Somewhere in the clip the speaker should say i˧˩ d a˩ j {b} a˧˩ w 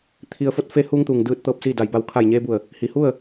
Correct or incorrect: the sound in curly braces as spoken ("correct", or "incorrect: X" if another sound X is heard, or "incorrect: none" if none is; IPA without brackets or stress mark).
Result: correct